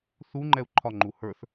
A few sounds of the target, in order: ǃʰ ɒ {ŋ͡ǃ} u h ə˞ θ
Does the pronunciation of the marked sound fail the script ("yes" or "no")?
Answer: no